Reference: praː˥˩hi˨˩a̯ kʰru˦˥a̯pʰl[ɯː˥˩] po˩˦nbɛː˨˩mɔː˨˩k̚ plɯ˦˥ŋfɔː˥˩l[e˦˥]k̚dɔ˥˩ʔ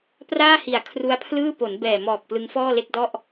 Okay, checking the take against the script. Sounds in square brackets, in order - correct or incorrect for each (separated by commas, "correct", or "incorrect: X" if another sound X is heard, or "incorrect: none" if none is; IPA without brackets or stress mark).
correct, incorrect: e˥˩